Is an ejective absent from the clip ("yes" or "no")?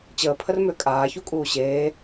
no